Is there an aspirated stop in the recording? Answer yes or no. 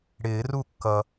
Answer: no